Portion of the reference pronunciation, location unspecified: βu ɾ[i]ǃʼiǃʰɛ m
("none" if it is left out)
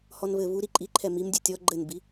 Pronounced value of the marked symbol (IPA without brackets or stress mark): i